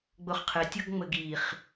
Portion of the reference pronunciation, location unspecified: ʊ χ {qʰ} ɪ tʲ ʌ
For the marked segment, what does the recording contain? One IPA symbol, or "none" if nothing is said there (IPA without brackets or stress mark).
qʰ